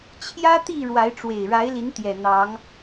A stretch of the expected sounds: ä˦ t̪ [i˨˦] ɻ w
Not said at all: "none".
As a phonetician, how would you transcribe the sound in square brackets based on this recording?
i˥˨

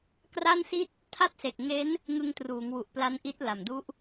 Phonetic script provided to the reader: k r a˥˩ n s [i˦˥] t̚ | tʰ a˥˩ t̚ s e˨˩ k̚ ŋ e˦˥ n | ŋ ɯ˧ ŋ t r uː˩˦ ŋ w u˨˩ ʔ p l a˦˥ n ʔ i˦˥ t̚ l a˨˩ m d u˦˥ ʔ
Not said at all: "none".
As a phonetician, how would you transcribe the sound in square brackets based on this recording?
i˥˩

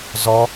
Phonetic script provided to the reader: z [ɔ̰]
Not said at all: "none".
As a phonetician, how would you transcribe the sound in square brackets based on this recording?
ɔ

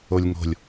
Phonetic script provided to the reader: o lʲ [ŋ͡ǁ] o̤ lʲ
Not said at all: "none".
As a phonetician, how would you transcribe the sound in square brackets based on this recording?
ŋ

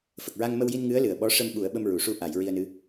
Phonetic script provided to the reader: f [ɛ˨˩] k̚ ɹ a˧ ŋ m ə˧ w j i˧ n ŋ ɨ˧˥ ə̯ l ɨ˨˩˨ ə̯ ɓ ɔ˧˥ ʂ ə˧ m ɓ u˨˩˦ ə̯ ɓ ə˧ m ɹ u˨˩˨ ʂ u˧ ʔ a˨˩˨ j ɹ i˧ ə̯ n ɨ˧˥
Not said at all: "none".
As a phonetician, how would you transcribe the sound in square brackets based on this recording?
ə˨˩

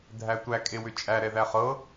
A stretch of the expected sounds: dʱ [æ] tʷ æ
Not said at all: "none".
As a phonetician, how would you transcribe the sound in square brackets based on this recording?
æ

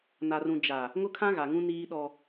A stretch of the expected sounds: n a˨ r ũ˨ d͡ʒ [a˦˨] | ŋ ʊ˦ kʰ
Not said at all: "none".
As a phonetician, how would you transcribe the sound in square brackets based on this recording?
a˨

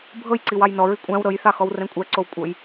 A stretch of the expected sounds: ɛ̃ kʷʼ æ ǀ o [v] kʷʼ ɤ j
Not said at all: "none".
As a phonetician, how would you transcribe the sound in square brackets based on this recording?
w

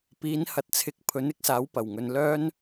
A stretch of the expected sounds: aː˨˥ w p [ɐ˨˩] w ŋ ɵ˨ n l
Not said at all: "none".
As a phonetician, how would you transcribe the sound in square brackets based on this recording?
ɐ˨˩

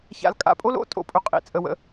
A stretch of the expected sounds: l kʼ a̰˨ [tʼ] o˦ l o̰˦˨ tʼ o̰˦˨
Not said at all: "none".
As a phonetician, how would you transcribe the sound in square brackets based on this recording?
pʼ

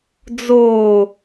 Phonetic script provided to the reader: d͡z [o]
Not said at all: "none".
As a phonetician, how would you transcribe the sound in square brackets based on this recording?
oː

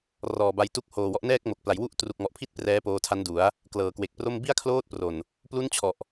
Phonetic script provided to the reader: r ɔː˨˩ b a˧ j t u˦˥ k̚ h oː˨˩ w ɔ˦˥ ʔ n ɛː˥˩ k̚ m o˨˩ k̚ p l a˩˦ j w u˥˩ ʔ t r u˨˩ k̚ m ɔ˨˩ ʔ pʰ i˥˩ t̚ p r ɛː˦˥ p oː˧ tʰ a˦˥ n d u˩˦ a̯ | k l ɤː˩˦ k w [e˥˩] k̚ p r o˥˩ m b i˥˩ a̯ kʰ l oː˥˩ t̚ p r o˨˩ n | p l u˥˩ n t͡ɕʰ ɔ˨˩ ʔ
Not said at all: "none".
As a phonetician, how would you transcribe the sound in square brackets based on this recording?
e˨˩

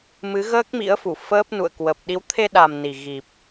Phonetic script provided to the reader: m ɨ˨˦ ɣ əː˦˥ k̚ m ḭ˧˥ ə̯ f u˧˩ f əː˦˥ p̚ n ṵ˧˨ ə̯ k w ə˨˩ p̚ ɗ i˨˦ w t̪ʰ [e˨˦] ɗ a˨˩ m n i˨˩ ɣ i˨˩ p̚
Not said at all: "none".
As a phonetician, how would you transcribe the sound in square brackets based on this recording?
e˧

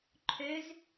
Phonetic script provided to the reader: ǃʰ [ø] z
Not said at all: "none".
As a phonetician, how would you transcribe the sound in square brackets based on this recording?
ø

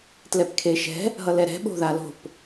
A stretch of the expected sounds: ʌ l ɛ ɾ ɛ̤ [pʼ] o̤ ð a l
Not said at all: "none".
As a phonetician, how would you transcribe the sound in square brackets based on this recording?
ɓ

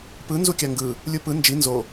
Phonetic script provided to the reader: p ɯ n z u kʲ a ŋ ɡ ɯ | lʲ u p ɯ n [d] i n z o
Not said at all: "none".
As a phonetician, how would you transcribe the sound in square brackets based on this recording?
d͡ʒ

